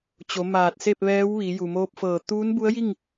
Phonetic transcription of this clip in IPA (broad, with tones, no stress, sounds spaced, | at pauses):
t͡ɕ o˩˧ m aː˧˩ t̚ s e˥˨ p̚ ʋ ɛː˧˥ w ʋ i˩˧ j u˩ m oː˧ p̚ f ɤː˧˩ t̪ uː˧˥ n b u˧˥ ə̯ j i˥˨ ŋ